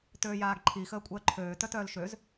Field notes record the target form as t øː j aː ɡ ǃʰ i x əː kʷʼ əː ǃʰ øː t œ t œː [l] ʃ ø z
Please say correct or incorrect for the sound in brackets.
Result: correct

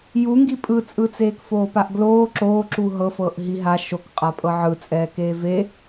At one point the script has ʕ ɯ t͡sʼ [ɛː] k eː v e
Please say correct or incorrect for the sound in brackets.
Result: correct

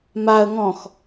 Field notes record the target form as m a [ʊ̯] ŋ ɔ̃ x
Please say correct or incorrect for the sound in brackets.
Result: incorrect: ə̯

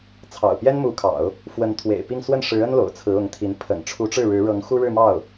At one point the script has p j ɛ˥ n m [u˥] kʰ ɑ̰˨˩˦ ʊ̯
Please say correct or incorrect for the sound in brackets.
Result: incorrect: u˧˥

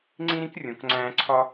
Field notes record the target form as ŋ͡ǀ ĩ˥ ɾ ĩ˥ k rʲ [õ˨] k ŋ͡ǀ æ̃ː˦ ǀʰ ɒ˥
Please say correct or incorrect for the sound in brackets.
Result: correct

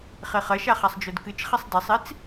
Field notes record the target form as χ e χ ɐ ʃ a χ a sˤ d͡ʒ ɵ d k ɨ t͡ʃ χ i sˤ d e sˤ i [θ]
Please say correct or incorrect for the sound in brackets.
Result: incorrect: t͡s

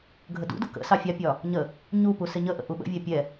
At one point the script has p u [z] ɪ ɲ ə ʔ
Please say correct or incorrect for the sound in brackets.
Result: incorrect: s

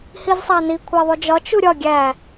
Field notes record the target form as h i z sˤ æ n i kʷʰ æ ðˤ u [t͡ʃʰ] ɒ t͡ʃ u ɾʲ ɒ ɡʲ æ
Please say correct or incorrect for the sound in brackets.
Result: incorrect: d͡ʒ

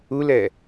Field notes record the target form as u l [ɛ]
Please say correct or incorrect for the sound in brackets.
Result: correct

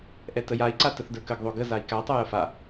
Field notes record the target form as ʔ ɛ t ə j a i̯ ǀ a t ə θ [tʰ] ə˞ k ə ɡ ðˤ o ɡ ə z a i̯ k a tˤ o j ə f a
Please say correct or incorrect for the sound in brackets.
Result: incorrect: d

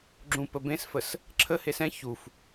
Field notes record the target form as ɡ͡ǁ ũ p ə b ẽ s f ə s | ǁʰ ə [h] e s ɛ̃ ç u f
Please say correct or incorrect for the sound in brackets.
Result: correct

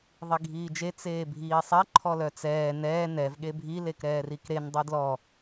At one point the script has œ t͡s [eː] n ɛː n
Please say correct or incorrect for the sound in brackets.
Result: incorrect: ɛː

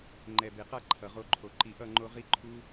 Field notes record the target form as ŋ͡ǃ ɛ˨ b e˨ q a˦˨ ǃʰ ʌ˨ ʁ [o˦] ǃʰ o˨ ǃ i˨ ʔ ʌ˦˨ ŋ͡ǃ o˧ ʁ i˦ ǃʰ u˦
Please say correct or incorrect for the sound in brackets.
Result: incorrect: o˧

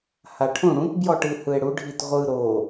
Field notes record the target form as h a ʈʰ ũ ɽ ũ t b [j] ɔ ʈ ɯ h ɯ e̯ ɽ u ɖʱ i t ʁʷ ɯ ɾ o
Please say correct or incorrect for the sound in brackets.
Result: correct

